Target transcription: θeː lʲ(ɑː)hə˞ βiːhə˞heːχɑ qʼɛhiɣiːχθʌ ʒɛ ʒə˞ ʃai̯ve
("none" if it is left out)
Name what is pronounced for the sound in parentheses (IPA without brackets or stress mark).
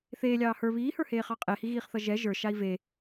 ɑː